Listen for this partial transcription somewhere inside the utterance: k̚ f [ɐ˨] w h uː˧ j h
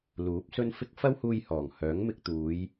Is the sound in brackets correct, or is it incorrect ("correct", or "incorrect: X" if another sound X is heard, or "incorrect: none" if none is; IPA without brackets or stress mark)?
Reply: incorrect: ɐ˥